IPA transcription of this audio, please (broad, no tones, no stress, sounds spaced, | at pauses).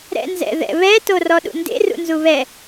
ɾ ɛ̰ n z ɛ̰ ð ɛ̰ β ɛ t o r ɔ ɗ ṵ n d ḛ r ṵ n z u β ɛ